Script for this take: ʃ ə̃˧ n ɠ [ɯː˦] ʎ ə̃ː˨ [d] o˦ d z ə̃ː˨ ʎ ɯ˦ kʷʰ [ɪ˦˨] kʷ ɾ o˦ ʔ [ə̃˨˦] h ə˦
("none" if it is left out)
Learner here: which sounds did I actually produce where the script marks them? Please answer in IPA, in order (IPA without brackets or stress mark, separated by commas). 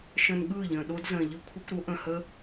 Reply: ɯː˦˨, ɗ, ɪ˦, ə̃˨